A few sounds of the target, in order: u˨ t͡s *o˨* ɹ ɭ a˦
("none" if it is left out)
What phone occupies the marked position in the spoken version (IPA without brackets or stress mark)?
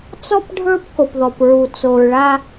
o˨